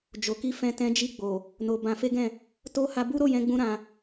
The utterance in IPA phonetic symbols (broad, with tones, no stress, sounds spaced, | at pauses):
d͡ʒ o˨ k i˧ f ɛ̃˧ t ɛ̃˧ d͡ʒ i˧ ɡ͡b o˨ | n o˧ b ã˧ f e˦ ɡ ɛ̃˦˨ | t o˦ h a˧ b u˦ ɾ o˦˨ j ɛ̃˧ ɡ͡b ũ˧ ɾ ã˧